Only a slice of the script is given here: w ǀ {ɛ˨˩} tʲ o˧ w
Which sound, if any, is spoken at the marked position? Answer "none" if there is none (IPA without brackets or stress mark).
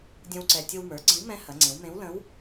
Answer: ɛ˨˩